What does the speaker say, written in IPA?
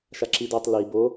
ʃaǁidotˤ li bo

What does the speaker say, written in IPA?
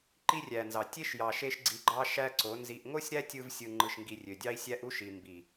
ǃi˦rʲæ˨nzɑ˨ tʲe˦ʃjɑ˨ ʃe˦ʃɡ͡ǀi˧ɡ͡ǃɑ˦ ʃæ˦ǀo˨˦nzi˧ʔ ŋo˦sʲɾæ˦tʲɯ˧vsʲɯ˨ ŋ͡ǃɯ˨ʃŋɡi˨ rʲø˨dʲɑ˦i̯sʲæ˦ʔ u˦ʃi˨mbi˨

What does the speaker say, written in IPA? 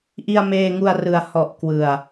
ʔi˧a̯meː˧ŋu˧a̯rɯ˨˩a̯ hɔ˨˩ʔ kwɯ˨˩a̯

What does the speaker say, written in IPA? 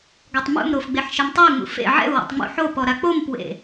ɡɔtˤmṵmɾof ɡ͡beħʃemtˤeu̯ŋ͡mṵ fḛ ʕɛ̰u̯wḛtˤ ŋ͡mṵ ħopɔ ɾak͡pompwḛ

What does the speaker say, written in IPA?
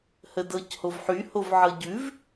hədɤchovħy hovʕɤɟʉv

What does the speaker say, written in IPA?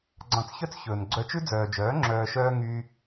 ɡ͡ǀɑ̃˧t͡sçœ˦t͡s çɵː˨n ɡ͡ǀœ˧t͡ʃʉ˦ d͡zœː˨d͡ʒœː˨˦ ŋ͡ǁœː˨ʃœː˧ ŋyː˧

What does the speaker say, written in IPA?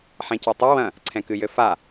ħɛ̃cɔtˤɨ wɐ̃ | ǀʰɛ̃kɨjɘfa

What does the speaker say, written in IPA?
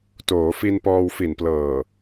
toː˩˦fi˧n pɔː˧wfi˨˩nplɤː˨˩

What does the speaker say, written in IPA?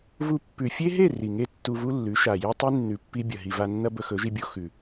vu˧ pːʉ˨fʲe˦ɦe˦˨ ri˨ŋe˦tːu˧vu˦ lːʉ˨˦ʃa˨je˦tˤi˦ nːʉ˨pːi˧ bʲɐ˨ɦi˨va˧nːɐ˦ bɵ˧xɵ˨˦ʒi˧bʲo˧ xʉ˨

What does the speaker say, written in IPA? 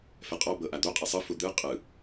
fɛqʼɔ bɤʔad̪o qʼesˤɯ fud̪ɯ qʼɯ

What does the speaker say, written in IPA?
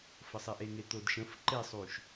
fəsˤeʔeŋe t̪odʃə̃f ǃesˤuʃ

